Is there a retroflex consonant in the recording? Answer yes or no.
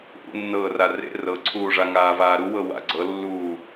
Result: yes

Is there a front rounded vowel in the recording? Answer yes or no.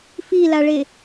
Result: no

